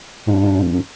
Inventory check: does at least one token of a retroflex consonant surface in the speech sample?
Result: no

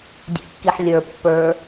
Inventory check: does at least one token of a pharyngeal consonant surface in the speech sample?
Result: yes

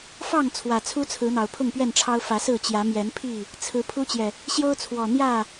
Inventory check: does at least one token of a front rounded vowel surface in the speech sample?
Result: no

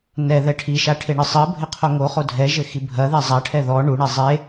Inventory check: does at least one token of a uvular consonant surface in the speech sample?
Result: yes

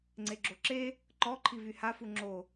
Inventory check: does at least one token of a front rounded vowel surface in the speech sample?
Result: yes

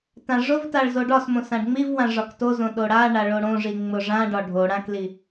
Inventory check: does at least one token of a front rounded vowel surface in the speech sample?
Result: no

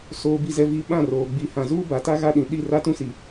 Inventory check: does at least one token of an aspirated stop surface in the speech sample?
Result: no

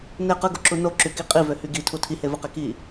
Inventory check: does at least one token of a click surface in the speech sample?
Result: yes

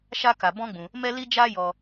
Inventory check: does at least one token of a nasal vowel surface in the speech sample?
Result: yes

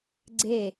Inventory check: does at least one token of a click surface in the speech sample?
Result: yes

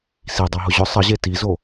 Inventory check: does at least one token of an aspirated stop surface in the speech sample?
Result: no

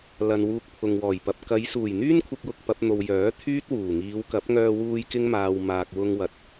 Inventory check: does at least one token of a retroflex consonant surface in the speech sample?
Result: no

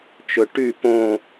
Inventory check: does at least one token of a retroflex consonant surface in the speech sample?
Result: yes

